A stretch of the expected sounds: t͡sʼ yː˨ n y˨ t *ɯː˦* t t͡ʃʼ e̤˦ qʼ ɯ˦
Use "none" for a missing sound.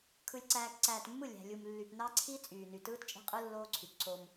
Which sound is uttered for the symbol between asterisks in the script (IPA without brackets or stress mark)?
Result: ɯː˦